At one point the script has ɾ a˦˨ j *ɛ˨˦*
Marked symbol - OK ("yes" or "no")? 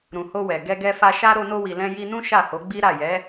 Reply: yes